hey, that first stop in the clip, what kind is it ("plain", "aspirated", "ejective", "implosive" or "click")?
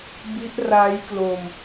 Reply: plain